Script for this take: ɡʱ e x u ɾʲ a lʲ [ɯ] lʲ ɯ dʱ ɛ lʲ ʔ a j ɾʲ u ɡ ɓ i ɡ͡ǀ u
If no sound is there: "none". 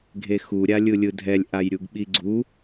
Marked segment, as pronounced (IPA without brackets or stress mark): ɯ